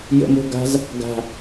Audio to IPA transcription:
j ə̰ m o̤ ɡ a̤ z | ɡ a̤

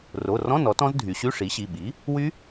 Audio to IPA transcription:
r o˩˧˩ r ɔ̃˧˥˧ n ɔ˩˥ t ɔ̃˦˥ z dʱ y˩˧ ɕ y˧˥˧ ʂ i˩˥ ɕ i˩˧˩ ɓ i˩˥ | w y˦˥

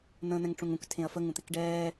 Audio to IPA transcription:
n̪ ə̃ː n̪ ɛ̃ ŋ ʈ͡ʂ ũ ŋ ũ k tʰ ẽ ɐ̯ f ə ŋ ũ t̪ ɪ k ɖ ɛː

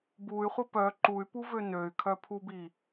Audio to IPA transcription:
b u y̯ χʷ ə p œ ǃ u y̯ p u v ø n ø y̯ kʰ œ pʰ u b i

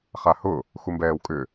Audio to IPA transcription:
χ a h ʊ | x u m b ɛː w kʼ ʏ

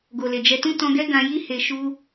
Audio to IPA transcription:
ɡ o˨ l e˨ d͡ʒ ɛ˧ t ũ˦ t ɔ̃˧ ɡ ɛ˦ ɡ ã˧ j i˦ h e˧ ʃ u˦

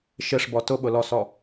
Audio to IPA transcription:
ʃ ɪ ʂ b ɔ t ʊ ɓ ʊ l ɔ s ɔ

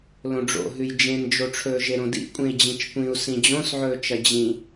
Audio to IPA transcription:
l õ ɖ͡ʐ o̰ ɦ ʉ j d͡ʒ ẽ n d͡ʒ o ʈ͡ʂʰ ɵː ʒ e ɾ õ d ḭ kʷʼ ẽ i̯ d͡ʑ ĩ t͡ʃ kʷ ĩ u̯ s ĩ d͡ʑ õ s ʕ ɵː t͡ʃ ɐ d͡ʑ ĩ

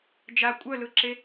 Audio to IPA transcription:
d͡ʒ a kʷʼ œ l ɯ ǁ e

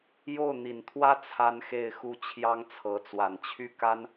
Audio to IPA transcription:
j o˥˩ ʊ̯ n̪ i˨˩ n t̪ʰ w ä˥ t͡sʰ a˥ n x e˥˧ ɪ̯ x u˥˩ t͡ɕʰ j ɑ˥ ŋ t͡sʰ ɤ˧˥ t͡s w a˨˩ n t͡ɕʰ y˥˩ k a˥ n

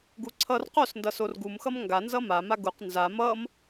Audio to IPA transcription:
ɡ u ǀʰ ʌ r q o s n d ʌ s o r ɡ u m x ʌ m ŋ ɡ a n z ʌ m a m a ɡ u q n z a m ʌ m

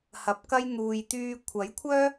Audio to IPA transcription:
h ɐ˨˥ p̚ k ɐ˥ j n̪ uː˧ j t̪ yː˥ kʷʰ ɐ˨˥ j kʷʰ œː˥

